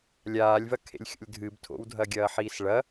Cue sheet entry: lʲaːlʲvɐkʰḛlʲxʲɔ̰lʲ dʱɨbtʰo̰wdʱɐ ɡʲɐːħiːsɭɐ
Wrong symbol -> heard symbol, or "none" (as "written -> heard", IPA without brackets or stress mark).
ɔ̰ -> o̰